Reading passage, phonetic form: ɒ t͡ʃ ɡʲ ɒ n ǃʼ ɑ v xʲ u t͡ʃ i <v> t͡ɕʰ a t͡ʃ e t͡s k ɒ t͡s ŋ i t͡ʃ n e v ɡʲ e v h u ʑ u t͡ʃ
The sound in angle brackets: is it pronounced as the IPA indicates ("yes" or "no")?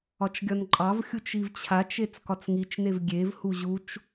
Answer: yes